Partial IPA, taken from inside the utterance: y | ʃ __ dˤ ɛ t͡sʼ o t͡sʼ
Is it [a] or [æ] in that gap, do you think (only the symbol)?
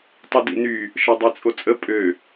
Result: a